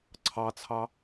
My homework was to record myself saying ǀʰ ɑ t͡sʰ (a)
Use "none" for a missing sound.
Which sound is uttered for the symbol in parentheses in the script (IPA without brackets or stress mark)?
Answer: ɑ